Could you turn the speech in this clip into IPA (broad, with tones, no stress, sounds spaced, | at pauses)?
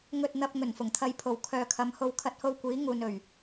ŋ ɵ˨ t̚ n̪ ɐ˨ p̚ ŋ ɵ˨˩ n f ʊ˨˩ ŋ t̪ʰ ɐ˧ j pʰ o˨˩ w kʰ œː˨ kʰ ɐ˨˥ m h o˧ w kʰ ɐ˧ t̚ h o˧ w kʷ iː˨˥ ŋ uː˨ n ɵ˨˩ ɥ